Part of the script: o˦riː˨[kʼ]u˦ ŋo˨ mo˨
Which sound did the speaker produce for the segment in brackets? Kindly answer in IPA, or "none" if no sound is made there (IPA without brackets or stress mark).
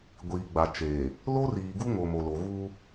ɡ